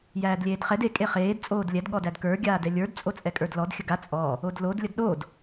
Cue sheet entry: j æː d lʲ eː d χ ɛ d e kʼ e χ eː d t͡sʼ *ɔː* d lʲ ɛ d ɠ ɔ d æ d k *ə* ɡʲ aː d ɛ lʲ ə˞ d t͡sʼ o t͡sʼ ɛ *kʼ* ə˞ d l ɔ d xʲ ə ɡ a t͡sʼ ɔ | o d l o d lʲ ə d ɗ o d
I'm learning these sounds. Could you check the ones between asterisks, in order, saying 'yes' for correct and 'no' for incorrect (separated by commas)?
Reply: no, no, yes